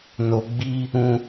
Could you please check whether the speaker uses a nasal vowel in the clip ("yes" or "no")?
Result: yes